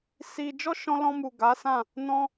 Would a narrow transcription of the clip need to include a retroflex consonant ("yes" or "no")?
no